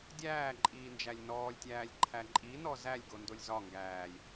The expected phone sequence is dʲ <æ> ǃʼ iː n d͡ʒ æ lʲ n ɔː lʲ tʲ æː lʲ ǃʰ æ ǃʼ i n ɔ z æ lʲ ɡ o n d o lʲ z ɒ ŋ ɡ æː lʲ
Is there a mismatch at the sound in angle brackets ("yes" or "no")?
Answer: yes